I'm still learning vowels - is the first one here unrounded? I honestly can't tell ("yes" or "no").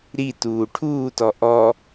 yes